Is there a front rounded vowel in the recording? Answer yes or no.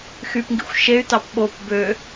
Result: yes